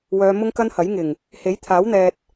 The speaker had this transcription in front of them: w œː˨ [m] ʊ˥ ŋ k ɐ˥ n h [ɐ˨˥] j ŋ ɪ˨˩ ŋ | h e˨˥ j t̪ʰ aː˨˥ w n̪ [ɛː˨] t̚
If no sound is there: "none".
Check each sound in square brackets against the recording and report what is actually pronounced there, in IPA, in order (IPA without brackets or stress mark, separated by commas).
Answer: m, ɐ˨˥, ɛː˨